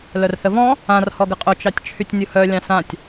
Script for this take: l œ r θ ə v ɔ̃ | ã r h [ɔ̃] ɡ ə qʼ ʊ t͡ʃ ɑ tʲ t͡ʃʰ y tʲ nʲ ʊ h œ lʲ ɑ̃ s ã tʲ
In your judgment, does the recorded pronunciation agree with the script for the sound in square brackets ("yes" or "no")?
no